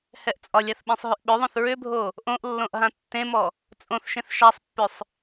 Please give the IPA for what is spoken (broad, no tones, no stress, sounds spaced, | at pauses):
h ɛ ʔ t͡sʼ ɒ lʲ a θ ɓ ẽ sˤ ɦ ʏ ʔ ɓ ʏ ðˤ õ θ ɹ ʏ bʱ o | ʔ õ ʔ lː õ ʔ ɦ ã tː ẽ m ɔ | t͡sʼ õ θ ʃ ẽ θ ʃ a sˤ pː ʏ sˤ